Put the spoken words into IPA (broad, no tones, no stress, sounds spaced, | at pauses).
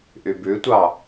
ʔ y b ʉ tʷ ɑ